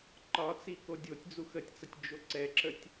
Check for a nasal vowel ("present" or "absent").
absent